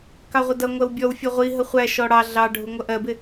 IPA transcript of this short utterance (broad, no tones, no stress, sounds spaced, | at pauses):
k ɑ ʁʷ ə d ʌ ŋʷ ɜ w bʲ ɔ w fʲ ʌ ʁʷ i ɦ ə χʷ æ ʃ ɔ ɽ ɑ ɮ ɑ ɖʱ u ŋʷ ʌ ʔ ɜ b ɪ